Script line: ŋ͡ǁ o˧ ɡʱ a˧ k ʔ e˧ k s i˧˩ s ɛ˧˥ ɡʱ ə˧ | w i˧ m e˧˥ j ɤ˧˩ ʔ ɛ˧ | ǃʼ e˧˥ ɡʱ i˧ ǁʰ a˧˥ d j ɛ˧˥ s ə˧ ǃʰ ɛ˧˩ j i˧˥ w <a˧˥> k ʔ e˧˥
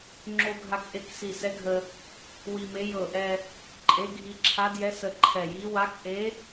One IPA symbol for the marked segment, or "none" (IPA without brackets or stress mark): a˧˥